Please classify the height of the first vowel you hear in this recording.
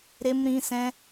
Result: mid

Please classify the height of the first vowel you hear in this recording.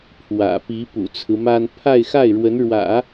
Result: low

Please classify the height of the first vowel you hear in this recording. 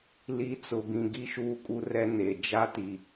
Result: high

